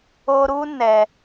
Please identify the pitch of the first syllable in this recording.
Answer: high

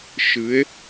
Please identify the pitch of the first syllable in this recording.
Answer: rising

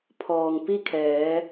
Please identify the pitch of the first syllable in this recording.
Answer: low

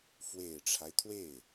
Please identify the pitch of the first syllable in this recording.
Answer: low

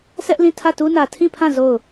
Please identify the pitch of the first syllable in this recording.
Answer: high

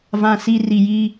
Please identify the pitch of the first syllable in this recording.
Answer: high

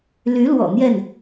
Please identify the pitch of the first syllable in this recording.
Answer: rising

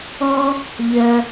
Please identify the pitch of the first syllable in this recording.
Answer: high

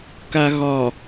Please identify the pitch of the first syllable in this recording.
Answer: low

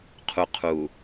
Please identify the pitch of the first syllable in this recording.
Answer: low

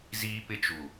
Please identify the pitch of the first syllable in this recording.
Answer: high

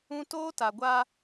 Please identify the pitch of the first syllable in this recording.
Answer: high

